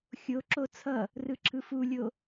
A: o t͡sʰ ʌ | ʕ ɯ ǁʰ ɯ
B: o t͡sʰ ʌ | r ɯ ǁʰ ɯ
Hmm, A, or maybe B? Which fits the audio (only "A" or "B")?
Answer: B